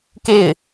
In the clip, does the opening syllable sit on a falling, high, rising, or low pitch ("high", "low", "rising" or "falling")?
falling